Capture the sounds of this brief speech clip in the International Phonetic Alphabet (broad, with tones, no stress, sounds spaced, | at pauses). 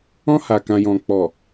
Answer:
ɔ̃˧ h a˨ k ã˨ j ɔ̃˨ k͡p ɔ˨